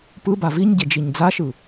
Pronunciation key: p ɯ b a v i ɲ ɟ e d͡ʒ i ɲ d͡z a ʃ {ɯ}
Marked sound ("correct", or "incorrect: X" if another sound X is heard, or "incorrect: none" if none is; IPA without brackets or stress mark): correct